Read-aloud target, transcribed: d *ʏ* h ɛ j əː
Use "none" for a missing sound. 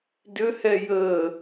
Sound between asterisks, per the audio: ʏ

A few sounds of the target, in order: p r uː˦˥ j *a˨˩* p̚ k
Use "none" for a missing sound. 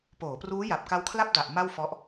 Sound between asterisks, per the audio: a˨˩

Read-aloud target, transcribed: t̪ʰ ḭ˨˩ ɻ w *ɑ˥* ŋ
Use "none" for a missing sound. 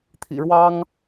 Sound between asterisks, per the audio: ɑ˥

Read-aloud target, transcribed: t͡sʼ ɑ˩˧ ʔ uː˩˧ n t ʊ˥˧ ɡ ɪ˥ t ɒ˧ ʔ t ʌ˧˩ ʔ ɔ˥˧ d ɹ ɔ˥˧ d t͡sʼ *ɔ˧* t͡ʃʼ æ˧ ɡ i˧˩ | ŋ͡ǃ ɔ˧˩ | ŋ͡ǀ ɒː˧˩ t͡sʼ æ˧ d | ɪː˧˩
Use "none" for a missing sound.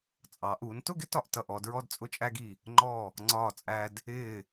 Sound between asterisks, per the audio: ʊ˧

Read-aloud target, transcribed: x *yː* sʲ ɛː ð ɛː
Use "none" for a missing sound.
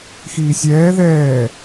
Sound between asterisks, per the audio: iː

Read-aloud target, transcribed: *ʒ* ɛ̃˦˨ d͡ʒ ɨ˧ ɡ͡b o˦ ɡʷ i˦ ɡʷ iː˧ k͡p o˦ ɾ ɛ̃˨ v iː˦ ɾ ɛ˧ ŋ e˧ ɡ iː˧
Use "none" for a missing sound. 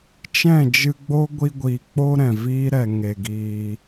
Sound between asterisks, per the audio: t͡ʃ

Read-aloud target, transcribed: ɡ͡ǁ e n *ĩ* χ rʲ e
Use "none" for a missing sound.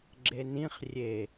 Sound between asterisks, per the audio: ĩ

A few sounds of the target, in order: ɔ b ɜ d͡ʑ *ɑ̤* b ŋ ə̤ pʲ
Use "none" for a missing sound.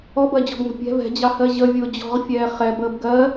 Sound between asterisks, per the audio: ɔ̤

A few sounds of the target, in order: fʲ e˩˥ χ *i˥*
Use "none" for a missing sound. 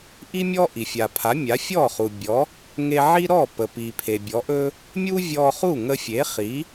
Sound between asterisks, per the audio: i˩˥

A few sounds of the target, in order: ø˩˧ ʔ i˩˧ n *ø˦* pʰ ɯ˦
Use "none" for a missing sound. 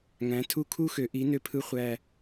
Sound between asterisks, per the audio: ø˦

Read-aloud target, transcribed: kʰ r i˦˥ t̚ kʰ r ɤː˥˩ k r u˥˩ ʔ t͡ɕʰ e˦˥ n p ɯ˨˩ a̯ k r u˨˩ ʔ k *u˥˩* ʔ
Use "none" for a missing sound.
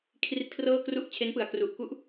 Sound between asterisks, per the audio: u˦˥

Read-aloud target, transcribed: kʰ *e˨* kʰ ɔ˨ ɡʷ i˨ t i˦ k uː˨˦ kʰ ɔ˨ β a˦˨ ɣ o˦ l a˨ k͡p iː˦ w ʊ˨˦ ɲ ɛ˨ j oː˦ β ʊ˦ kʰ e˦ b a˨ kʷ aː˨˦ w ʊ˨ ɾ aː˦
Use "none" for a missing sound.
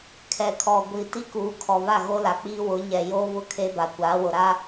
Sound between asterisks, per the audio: ɛ˨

